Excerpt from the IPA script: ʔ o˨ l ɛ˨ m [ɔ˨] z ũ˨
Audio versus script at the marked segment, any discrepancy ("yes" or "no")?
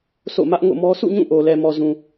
no